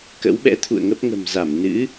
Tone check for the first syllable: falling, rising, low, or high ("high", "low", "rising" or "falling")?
rising